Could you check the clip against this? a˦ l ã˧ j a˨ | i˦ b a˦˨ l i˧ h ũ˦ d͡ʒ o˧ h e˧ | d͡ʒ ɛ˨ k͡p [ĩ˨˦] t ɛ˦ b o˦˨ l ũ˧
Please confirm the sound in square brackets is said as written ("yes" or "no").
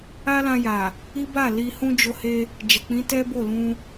yes